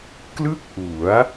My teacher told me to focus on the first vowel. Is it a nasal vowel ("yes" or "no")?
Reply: no